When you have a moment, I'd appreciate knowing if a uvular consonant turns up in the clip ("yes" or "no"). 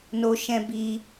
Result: no